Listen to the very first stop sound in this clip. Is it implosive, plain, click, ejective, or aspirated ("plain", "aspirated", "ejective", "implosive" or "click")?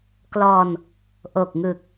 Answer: plain